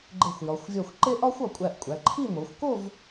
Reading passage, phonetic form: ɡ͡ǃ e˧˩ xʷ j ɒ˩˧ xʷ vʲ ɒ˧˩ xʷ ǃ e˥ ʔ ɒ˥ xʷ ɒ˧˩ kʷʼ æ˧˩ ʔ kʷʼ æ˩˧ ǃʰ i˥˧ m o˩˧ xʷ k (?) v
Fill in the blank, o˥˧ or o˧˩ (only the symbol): o˥˧